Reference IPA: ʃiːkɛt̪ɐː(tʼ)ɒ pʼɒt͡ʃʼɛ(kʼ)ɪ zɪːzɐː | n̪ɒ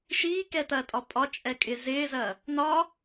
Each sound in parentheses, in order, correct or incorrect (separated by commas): correct, correct